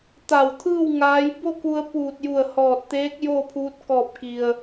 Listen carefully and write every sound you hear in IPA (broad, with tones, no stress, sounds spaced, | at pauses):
t̪ a˧˩ w t̪ʰ ɯː˥˨ w ŋ aː˧˥ j b o˥˨ k u˧ ə̯ p uː˧˩ t̚ j u˧˩ ə̯ h ɔː˧˩ t̚ t̪ eː˧˥ k̚ j oː˥˨ pʰ uː˧˥ t̚ k ɔː˧˩ p̚ k i˩ ə̯